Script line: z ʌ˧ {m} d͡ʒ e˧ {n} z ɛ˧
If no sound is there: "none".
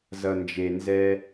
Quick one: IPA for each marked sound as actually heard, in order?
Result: n, n

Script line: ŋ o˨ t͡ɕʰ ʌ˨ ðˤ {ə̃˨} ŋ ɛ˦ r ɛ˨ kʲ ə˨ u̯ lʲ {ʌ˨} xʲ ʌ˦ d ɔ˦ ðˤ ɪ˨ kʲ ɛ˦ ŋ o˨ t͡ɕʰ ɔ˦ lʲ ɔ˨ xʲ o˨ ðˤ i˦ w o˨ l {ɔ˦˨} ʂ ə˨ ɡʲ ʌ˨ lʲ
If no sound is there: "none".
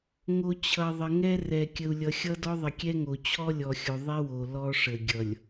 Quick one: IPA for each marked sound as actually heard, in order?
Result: ə˨, ʌ˨, ɔ˦

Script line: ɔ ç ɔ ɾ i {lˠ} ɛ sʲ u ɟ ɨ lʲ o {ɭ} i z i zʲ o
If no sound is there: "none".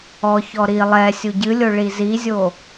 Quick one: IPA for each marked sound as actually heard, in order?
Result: lˠ, ɭ

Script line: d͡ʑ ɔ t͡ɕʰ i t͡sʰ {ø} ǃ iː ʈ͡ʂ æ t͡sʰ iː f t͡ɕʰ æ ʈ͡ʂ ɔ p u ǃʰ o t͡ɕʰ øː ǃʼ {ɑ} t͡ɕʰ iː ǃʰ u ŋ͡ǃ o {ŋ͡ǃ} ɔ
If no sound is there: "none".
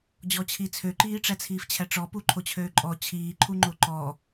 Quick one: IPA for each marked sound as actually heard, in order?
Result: ø, ɔ, ǃ

